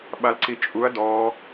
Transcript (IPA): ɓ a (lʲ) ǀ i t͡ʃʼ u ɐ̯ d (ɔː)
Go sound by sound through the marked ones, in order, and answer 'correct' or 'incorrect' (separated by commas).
incorrect, correct